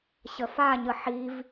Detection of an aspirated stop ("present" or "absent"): absent